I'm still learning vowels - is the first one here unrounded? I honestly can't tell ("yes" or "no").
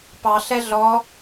yes